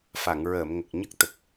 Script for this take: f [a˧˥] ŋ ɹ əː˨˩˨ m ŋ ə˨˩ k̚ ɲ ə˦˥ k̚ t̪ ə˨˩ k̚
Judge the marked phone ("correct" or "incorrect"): incorrect